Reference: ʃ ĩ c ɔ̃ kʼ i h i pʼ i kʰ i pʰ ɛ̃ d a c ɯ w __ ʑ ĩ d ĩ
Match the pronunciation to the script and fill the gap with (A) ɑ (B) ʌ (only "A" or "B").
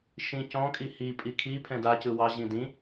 A